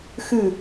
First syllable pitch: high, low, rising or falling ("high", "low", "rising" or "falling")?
falling